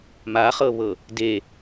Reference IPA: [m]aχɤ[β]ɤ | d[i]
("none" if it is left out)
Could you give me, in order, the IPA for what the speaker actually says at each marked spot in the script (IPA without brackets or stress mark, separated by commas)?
m, β, e